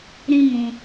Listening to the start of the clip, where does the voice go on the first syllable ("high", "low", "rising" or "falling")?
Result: high